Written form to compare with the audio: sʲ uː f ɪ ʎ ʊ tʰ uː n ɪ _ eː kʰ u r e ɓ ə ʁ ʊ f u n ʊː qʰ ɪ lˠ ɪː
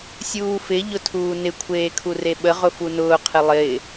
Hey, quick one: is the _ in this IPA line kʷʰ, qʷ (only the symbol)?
kʷʰ